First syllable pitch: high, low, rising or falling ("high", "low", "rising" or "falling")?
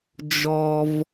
low